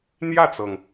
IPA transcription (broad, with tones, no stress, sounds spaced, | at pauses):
n̪ j ä˥˩ t͡s ɤ˩ ŋ